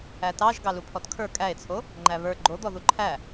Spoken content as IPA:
æ t ɑ ʒ ɡ ɑ l u pʰ ɔ t kʰ ə˞ kʼ æ e̯ t͡sʰ o | ŋ͡ǃ æ β ə˞ ɡ͡ǃ o d̪ ɔ ð u ǃʰ æ

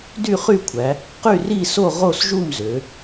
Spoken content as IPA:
d y˥˨ χ y˥˨ kʷʰ æ˩˧ | q y˥˨ r i˥˨ s o˥˨ ʁ o˥˨ s ʒ u˥˨ m z ø˩˧

